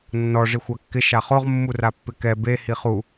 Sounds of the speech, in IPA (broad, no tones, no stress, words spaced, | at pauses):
nːɔ ʐixʷakːɪ ʃaχoʁ mːurapːɪkɛ be hiχu